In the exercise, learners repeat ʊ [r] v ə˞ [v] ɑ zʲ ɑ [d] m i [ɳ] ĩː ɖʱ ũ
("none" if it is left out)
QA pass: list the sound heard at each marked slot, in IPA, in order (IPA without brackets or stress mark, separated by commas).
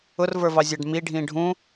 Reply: r, v, ɖ, ɖʱ